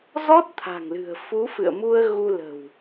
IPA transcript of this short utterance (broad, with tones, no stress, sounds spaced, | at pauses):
z ɔ˦˥ t̚ t̪ʰ a̤˨˩ ŋ l ɨ̤˨˩ ə̯ f u˨˦ f ɨ̰˧˨ ə̯ m u˧ ə̯ ɣ u˧ l ə̤˨˩ w